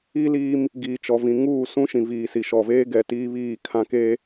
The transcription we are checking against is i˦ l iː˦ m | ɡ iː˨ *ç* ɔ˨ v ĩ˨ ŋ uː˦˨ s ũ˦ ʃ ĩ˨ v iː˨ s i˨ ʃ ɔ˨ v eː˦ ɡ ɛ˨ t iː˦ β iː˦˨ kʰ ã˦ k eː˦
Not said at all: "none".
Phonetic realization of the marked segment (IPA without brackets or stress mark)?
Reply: t͡ʃ